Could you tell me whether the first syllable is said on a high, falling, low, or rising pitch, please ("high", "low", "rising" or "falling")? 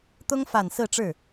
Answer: high